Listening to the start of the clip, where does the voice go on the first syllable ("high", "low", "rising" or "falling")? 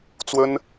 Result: high